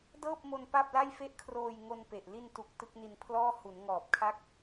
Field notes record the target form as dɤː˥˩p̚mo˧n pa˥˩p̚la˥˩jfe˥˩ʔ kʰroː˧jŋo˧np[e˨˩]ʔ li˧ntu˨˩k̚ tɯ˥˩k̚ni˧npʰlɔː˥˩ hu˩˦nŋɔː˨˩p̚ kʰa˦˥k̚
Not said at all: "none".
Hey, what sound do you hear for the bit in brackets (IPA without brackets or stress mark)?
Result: e˨˩